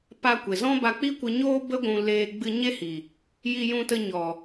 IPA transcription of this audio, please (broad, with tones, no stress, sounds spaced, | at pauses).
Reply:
p a˧ kʷ e˨ z ɔ̃˦ b a˧ k͡p i˦ kʷ ɨ˧ ɲ oː˦ b ə˦ ɡʷ ũ˧ l eː˧ ɡ͡b ɨ˦ ɲ e˦ h i˨ | j i˧ j ũ˧ t ə˧ ɲ ɔ˨